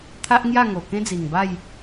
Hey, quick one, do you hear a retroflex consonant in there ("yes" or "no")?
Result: no